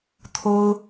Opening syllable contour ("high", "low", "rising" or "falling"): high